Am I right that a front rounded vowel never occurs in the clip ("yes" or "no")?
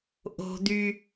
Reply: no